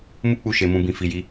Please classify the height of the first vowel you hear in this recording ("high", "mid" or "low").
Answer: high